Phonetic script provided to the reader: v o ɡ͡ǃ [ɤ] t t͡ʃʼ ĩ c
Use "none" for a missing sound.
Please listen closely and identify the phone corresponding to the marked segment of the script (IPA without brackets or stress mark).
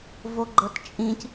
ɤ